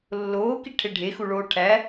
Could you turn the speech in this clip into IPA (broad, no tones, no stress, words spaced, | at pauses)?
lːoːkiʈʰe ɖʱexuɭoː ʈʰæ